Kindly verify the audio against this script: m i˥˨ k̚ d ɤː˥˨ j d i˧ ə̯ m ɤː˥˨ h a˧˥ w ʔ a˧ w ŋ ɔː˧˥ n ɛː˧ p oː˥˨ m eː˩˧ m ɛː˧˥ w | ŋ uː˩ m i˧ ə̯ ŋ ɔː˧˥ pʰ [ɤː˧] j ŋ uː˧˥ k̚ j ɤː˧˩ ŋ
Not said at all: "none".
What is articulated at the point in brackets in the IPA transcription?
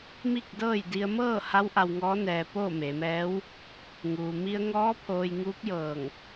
oː˧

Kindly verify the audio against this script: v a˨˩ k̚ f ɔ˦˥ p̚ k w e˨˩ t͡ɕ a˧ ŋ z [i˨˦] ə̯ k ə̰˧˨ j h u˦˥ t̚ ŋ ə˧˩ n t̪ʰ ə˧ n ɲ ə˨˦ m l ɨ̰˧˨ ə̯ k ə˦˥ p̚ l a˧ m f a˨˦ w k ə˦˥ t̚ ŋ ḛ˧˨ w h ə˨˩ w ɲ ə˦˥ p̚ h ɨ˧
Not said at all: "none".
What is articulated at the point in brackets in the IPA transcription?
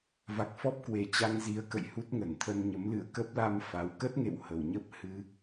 i˨˦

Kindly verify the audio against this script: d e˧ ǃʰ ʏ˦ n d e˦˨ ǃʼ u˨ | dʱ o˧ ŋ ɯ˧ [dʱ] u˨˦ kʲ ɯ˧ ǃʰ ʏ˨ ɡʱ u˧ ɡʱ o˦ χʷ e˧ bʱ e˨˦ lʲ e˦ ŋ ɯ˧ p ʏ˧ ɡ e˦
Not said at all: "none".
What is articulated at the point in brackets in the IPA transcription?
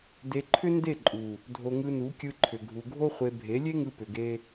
n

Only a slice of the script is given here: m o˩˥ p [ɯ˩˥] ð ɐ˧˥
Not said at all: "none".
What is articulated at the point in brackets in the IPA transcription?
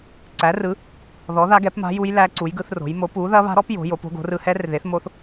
u˩˥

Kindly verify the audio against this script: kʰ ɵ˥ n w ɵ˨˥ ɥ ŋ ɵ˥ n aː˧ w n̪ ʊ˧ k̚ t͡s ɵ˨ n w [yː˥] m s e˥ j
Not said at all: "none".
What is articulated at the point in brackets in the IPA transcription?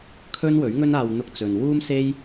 uː˥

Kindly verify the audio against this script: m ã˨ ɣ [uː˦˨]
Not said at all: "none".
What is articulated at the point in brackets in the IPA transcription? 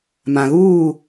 uː˦˨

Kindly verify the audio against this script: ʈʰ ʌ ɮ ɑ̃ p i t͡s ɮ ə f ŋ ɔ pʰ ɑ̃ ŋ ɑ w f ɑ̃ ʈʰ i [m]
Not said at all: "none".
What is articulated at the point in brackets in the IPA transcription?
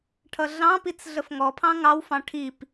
p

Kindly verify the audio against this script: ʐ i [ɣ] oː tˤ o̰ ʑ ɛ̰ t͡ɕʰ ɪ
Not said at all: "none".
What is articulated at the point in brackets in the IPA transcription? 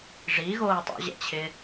ɣ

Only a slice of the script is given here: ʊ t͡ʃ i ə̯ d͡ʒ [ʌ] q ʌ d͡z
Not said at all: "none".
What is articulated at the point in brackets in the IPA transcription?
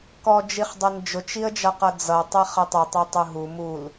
ʌ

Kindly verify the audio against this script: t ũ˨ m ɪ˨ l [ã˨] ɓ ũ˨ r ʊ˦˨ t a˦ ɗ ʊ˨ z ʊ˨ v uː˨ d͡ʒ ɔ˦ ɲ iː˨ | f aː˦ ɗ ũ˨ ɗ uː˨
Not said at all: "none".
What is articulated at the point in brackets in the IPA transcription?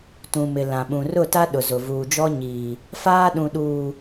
ã˨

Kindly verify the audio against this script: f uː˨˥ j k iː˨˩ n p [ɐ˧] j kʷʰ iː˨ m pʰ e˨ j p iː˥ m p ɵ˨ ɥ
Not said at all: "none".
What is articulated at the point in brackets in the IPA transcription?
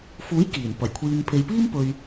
ɐ˨˩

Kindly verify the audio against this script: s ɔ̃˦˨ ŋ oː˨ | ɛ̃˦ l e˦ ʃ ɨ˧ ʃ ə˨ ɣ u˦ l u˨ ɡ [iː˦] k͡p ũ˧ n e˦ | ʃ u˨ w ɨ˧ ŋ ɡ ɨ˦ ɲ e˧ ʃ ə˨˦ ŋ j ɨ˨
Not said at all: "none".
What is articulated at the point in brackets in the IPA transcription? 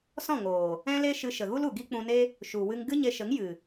i˦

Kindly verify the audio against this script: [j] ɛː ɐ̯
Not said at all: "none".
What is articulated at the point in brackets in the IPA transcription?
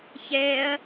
ç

